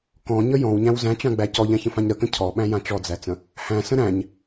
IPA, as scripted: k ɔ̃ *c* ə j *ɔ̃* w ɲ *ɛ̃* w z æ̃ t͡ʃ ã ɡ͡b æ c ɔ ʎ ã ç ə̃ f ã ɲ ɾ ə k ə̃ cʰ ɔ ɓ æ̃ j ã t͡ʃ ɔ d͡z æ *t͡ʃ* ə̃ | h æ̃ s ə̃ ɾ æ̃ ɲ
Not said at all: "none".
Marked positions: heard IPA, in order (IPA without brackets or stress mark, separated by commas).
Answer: ɲ, ɔ̃, æ̃, t͡s